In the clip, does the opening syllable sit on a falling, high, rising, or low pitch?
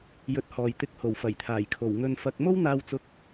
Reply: rising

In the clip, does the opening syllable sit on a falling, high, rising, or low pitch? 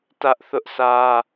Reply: high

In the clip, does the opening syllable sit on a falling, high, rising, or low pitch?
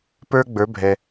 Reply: high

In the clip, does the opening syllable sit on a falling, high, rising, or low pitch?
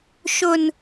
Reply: high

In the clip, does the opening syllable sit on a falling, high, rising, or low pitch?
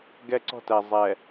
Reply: high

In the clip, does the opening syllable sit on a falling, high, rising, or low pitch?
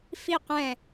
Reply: falling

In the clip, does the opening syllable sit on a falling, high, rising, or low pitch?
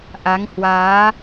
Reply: rising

